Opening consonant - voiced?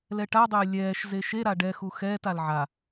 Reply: yes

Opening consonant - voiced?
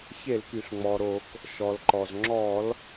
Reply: no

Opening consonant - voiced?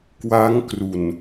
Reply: no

